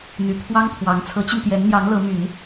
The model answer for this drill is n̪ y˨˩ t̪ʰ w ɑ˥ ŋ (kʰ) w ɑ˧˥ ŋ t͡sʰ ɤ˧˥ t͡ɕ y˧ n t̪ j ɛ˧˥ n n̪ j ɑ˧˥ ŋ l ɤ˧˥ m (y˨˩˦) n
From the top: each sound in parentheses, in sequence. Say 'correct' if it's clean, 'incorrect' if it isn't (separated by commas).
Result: incorrect, correct